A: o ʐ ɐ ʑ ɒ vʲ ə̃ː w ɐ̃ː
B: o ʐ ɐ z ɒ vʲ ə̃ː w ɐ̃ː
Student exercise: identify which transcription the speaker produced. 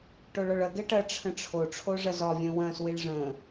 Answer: B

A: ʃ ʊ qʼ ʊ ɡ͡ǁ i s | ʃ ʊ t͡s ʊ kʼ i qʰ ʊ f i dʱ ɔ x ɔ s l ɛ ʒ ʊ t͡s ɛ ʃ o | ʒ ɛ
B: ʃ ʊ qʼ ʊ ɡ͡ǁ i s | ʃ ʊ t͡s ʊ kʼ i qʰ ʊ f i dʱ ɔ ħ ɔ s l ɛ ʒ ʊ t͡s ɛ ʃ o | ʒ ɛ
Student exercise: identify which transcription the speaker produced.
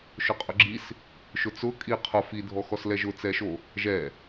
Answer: A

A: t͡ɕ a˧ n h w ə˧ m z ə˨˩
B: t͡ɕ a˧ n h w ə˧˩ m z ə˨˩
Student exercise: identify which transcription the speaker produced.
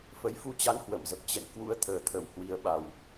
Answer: B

